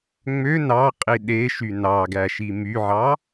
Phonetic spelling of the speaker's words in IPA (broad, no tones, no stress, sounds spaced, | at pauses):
ŋ͡m ø n ɑ qʼ i ɗ e ʃ y n ɑ ɡ æ ʃ i m y ʕ ɑ